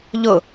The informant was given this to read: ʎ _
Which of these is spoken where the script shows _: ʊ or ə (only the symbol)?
ʊ